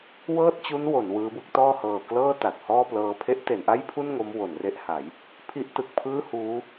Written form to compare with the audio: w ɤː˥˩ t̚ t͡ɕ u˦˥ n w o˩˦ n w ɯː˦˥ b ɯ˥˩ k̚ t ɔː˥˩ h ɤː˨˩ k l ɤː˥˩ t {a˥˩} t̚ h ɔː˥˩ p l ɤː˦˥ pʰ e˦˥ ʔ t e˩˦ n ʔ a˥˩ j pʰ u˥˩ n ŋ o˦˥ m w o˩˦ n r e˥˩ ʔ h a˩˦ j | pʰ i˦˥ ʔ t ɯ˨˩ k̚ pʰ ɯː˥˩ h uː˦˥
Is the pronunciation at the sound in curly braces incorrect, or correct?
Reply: incorrect